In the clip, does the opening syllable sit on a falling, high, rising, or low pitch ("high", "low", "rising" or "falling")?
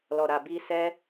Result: low